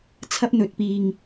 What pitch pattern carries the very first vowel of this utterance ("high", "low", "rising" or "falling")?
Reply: high